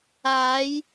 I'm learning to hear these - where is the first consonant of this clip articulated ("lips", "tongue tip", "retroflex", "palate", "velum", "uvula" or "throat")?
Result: palate